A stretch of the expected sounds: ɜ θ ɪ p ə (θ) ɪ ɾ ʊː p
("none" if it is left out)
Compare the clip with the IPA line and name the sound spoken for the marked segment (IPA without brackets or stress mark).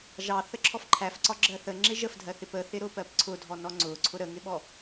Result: θ